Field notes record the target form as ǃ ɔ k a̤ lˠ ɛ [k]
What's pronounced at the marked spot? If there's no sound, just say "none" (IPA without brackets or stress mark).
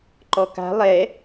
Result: none